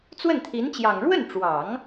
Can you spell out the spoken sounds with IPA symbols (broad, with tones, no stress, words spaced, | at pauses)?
t͡swə˥˩nt̪ʰi˧˥nt͡ɕjɑ˨˩ŋ ɻwə˥˩nʈ͡ʂwɑ˨˩˦ŋ